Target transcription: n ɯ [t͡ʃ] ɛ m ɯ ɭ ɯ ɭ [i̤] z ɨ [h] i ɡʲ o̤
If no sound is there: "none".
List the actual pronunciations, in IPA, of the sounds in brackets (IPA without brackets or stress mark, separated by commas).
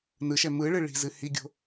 ʃ, i̤, h